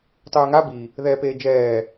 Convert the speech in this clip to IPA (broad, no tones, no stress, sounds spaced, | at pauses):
tˤ ʉː ŋ a b i | ð ɛː p eː d͡ʒ ɛː